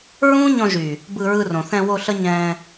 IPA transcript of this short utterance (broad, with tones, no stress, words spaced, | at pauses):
ɹũː˦ɲɔ̃˧ʒyː˨ | bɯ˧ɹɯ˧ rõ˨θɛ̃˧wo˧ ɬə˦ɲɛ̃ː˧